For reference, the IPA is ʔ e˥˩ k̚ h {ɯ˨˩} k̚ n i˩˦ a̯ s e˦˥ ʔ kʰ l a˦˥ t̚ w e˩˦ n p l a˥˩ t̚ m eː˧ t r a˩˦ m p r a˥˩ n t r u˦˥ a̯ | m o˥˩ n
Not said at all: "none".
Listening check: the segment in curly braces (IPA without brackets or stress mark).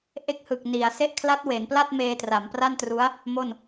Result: ɯ˨˩